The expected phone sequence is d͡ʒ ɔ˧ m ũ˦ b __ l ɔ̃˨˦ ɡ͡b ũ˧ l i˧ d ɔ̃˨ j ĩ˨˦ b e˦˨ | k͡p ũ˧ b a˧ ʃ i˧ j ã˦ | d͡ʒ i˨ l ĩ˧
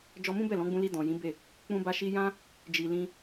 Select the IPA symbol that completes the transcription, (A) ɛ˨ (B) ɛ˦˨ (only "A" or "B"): B